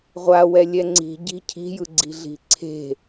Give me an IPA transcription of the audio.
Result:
ʁʷ a w ɛ lʲ ɛ ŋ͡ǀ i̤ ɟ i̤ cʰ i̤ j ɯ ɡ͡ǀ i̤ ɮ i̤ ǀʰ e̤

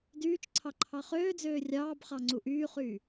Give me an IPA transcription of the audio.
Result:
d yː t͡ʃ ǀʰ ɑ ǃʰ ɑ χ øː d͡z øː rʲ ɑː b χ ɑ ŋ͡ǀ u ʔ yː χ yː

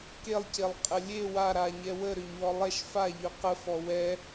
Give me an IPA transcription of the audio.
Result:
k e lˠ c e lˠ qʼ ə lʲ e w a ɾ a ɲ ɛ w ə ɾ ø ɲ w ɔ lˠ ɛ ʃ f a ʎ ø q ə f ɔ w ɛ

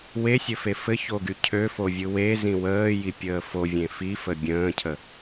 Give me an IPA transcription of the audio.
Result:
w e sʲ ɘ f e f ɘ ç o ɡ y cʰ ø f o vʲ ɯ w e z ĩ w əː j i pʲ əː f o vʲ ẽ f i f ə bʲ ə̃ː cʰ ə

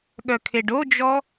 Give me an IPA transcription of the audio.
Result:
ɠ œ kʰ e ɖ o d͡ʒ ɔ

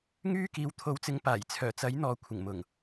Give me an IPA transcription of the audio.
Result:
ŋ yː˧ k iː˨ w t̪ʰ o˨˥ w t͡s ɪ˨˥ ŋ p aː˨˩ j t͡sʰ œː˨˩ t͡s ɐ˨˥ j n̪ ɔː˨ kʷʰ ɪ˨˩ ŋ m ʊ˨˩ ŋ

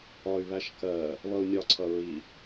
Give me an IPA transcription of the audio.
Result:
ɒ y̯ β æ ʃ k ɜ | β ʌ u̯ nʲ ɒ ǀʰ ʌ ɹ i

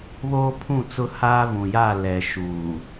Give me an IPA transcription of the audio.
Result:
β oː˦ pʰ ũ˦˨ t͡s ʊ˦ h aː˦ v ũ˨ j a˦˨ l ɛ˨ ʃ uː˨

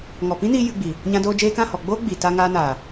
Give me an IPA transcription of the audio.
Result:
ŋ ɔ˨ p ĩ˦ n iː˧ j ɨ˧ ɡ͡b i˨ | ɲ ã˧ d oː˧ d͡ʒ eː˧ k ã˦˨ h ɔ˨ ɡ͡b oː˦ ɡ͡b i˨ t aː˦ ŋ aː˦ n aː˨

